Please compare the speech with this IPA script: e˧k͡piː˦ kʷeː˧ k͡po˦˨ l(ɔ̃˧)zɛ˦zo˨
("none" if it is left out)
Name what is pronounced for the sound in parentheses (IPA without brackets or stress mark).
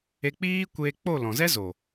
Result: ɔ̃˨